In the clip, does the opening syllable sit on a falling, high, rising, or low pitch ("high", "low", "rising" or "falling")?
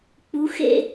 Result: rising